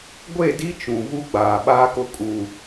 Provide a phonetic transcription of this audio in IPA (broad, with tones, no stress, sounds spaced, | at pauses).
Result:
ɡʷ e˦˨ d i˦ t͡ʃ ũ˨ v u˦ ɡ͡b aː˨ ɓ aː˦ k ʊ˦ kʼ u˨